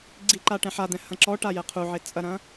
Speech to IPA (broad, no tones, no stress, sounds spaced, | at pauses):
ɡ͡ǀ i ǃ a ʈ ɛ̃ ħ a d̪ ɛ̃ h ɐ̃ ǁ ɔ ʈ a j ɛ qʰ u ʕ e t͡sʼ ɐ ɾ ɐ̃